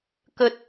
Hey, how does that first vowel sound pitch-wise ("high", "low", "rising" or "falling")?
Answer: low